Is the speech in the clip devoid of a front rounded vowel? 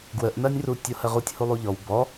yes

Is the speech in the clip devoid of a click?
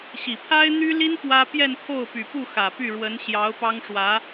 yes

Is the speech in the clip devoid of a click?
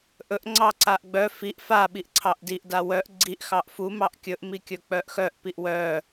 no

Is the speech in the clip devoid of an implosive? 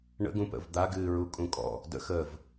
yes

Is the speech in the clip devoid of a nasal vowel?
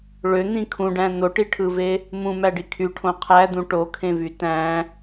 no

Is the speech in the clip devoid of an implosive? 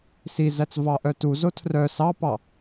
yes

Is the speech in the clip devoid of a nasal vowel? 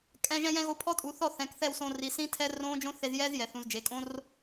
no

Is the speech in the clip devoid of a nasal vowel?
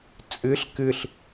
yes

